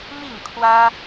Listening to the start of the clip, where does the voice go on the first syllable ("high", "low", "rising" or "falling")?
falling